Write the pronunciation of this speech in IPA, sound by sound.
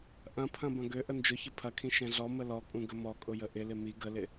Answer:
ʔ ɐ̃ pʰ ɐ̃ b ɐ̃ ɡ ø ʔ ə n d͡ʒ ʊ ç ə pʰ ɐ kʰ ĩ ʃ ɛ̃ ɮ ɔ m ə l ɔ kʼ ũ ɡ ə m ɔ kʼ ʊ j ə ʔ ɪ l ɪ m i ɡ ə l ɪ

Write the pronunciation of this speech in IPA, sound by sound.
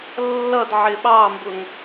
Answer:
lː ʌ d ʕ ɪ ɓ ɑ m b ʊ ŋ

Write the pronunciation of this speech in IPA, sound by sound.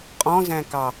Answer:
qʼ ɔ̃ z æ̃ k ɑ

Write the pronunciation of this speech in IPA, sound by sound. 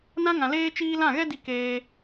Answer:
n ã˦ ŋ ã˨ l eː˦ t͡ʃ iː˦ l ã˦˨ ɣ ɛ˦ d i˧ k eː˧

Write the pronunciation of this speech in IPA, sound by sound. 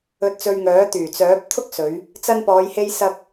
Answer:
ɵ˨ t̚ t͡s ɵ˨ ɥ ŋ œː˨˥ t̪ yː˨˩ t͡s œː˨˥ p̚ t̪ʰ ʊ˥ k̚ s ɵ˨˧ ɥ | t͡s ɐ˧ n p ɔː˨˧ j h e˥ j s ɐ˧ k̚

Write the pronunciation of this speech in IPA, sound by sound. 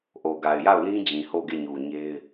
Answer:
ʔ o˨ ɡ a˨ ɪ̯ j a˦˨ ʊ̯ l ĩ˦ d͡ʑ ĩ˨ h o˦˨ ɡ e˦˨ ɲ u˨ ɲ e˦ ɪ̯

